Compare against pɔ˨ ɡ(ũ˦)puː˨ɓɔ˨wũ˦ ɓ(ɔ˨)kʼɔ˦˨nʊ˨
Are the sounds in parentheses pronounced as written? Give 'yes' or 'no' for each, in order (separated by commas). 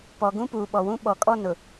yes, yes